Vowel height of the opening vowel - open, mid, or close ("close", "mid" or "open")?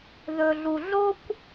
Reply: mid